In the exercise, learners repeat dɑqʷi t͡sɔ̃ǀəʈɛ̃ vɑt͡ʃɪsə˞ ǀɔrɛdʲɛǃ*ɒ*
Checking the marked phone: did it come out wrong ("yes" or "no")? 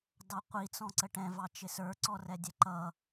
yes